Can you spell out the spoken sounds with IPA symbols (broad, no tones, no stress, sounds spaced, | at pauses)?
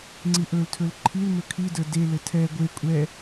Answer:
ŋ͡ǀ i ʔ ɵ l tʰ ɵ l ǃʰ i l m ɵ kʰ i d ə˞ d e l ɘ tʰ ɛ ɡʷ e kʷʼ ɛ